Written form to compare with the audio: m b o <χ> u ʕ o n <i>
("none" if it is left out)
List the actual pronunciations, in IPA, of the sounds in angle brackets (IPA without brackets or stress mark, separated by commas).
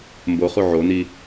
χ, i